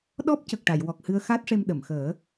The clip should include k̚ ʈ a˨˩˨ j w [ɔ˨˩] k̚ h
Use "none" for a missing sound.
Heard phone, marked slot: ɔ˨˩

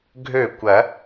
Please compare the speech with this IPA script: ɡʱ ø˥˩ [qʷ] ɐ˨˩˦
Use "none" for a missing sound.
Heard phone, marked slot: kʷ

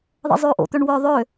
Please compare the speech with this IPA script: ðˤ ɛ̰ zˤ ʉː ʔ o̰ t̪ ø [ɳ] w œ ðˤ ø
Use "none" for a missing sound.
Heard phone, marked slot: ɳ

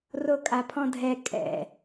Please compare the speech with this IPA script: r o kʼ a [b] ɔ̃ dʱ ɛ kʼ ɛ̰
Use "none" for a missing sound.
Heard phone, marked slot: pʰ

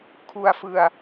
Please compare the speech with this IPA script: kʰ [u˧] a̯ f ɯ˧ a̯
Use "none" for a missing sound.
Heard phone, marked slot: u˧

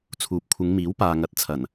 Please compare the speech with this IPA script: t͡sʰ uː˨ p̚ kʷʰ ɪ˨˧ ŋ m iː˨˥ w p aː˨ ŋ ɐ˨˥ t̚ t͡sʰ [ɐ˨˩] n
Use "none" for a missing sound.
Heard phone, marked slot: ɐ˨˩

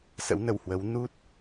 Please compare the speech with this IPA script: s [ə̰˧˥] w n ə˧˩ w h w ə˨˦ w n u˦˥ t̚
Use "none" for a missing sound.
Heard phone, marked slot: ə̰˧˥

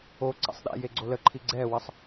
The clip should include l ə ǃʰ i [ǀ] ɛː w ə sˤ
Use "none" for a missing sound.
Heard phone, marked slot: ɡ͡ǀ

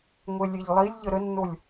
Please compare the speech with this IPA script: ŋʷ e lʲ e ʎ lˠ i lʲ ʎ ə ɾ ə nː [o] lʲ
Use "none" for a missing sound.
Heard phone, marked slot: o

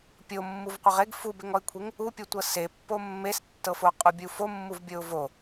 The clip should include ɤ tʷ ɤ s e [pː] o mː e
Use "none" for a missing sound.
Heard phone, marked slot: pː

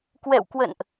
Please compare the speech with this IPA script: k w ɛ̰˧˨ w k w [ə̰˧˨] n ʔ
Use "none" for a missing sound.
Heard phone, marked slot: ə̰˧˨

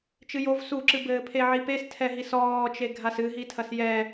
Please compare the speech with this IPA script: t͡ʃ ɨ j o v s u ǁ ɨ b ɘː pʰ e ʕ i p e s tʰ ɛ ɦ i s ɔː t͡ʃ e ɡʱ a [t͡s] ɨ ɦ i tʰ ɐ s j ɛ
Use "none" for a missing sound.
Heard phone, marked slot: s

